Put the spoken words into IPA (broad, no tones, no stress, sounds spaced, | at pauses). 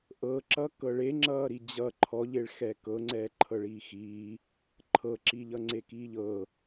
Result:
ʔ ɤ ǁ ʌ k ɤ ɭ e ŋ͡ǁ ʌː ɾ i d͡ʑ ʌ ǃʰ ɔ ʎ e ɭ x ɛː k ɤ ŋ͡ǀ ɛː ǃʰ ɤ ɭ iː x iː | ǃʰ ɤ ǁ i ʎ ʌ ŋ͡ǀ e k iː ʎ ɤ